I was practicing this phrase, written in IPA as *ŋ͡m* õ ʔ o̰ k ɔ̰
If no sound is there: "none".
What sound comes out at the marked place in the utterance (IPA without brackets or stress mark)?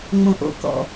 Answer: ŋ͡m